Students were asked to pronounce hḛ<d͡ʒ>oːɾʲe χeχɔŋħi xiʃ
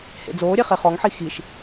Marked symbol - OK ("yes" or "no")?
no